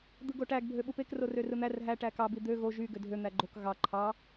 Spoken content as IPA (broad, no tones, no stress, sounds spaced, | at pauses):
d̪ ɯ ɡ o ʈ æ ɡ bʱ ø ɓ u p e k r o r ø r ɯ n̪ æ r ɦ æ ʈ æ k ɑ b i d̪ ø ɣ o ʒ y ɡ ø dʱ ø n̪ æ ɡ͡ǃ o k ɣ ɑ ǃʰ ɑ